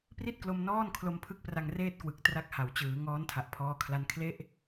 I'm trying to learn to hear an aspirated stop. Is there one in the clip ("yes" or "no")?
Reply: yes